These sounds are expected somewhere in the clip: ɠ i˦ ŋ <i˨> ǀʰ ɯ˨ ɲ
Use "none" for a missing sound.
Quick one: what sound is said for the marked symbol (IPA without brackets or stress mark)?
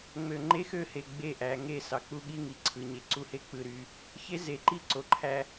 i˨